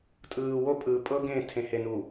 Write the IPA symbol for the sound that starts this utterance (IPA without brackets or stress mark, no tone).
tʼ